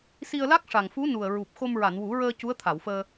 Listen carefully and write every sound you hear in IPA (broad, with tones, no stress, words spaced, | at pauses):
si˧ə̯la˦˥k̚ʂa˨˩ŋfu˧˥ nu˨˩ə̯ɹu˨˩p̚ xo˧mɹa˨˩˨nwu˨˩˦ɹəː˧ cu˧˥ə̯t̪ʰa˨˩˨wfəː˧